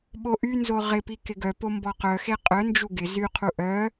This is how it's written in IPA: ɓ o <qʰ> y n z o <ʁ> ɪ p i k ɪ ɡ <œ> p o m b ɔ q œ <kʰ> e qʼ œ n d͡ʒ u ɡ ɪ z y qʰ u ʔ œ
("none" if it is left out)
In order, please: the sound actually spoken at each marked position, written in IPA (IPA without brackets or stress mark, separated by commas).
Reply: ʔ, ʁ, œ, x